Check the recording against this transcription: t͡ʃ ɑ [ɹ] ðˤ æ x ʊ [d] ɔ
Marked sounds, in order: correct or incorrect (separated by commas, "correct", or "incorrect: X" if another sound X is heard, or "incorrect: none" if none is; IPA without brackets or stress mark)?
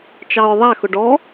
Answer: correct, incorrect: ɖ